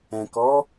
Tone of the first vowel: low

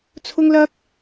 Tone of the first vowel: high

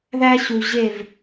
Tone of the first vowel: high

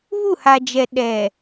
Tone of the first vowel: falling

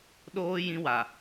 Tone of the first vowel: high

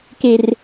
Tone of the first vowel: low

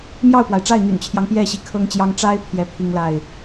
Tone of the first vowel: falling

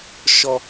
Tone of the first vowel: high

